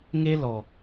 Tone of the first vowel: high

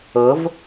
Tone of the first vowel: rising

